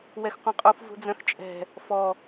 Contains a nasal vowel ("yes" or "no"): yes